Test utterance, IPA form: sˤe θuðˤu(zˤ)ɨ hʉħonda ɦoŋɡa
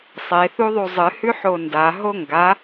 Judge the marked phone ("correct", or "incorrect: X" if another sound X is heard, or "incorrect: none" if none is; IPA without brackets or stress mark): correct